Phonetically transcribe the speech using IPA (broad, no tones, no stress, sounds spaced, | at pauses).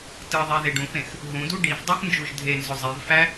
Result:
t ɯ ðˤ e ð e ɖ ũ f ẽ x | ɦ ũ d u ɖ i v dˤ ɯ x n d͡ʒ u ʒ dʱ e n z ɵ zˤ i v f æ